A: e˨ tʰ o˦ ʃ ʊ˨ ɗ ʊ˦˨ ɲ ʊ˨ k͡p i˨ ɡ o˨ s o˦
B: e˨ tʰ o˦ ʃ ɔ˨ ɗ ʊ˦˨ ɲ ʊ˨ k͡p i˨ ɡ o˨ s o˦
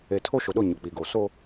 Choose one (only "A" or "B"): A